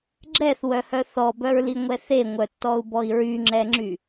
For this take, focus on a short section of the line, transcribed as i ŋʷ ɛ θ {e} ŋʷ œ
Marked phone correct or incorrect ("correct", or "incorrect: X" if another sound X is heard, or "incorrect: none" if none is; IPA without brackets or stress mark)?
correct